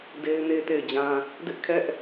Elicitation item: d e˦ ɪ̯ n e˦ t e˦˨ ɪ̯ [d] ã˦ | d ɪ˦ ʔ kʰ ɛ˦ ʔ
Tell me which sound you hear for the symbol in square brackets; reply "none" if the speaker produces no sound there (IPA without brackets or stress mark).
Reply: d͡ʑ